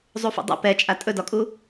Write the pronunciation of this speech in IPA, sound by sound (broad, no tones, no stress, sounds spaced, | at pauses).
zˤ u f ṵ dˤ ḭ p ɛ t͡ʃʼ a tʼ ɵ d ɒ kʼ u